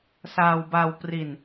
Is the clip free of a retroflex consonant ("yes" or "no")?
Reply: yes